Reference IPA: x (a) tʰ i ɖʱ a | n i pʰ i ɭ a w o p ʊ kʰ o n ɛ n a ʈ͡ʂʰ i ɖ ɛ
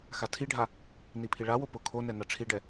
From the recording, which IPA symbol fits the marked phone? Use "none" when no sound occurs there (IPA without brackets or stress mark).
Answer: a